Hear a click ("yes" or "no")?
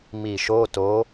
no